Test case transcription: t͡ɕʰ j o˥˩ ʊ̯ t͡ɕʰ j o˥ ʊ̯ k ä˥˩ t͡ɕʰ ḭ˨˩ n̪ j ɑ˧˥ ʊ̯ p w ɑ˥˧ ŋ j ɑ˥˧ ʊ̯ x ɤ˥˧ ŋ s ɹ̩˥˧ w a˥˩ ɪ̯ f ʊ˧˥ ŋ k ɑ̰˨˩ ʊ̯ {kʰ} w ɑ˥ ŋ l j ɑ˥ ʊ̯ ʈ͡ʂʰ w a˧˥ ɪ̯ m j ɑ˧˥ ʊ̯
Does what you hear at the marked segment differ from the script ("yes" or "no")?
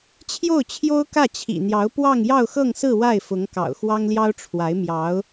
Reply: yes